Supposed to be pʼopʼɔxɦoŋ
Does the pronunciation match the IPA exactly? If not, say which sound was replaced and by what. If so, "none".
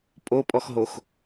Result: ŋ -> x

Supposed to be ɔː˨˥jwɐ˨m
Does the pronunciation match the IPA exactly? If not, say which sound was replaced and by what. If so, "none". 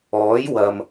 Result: none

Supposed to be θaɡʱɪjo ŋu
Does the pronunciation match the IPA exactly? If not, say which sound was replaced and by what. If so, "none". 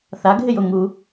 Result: none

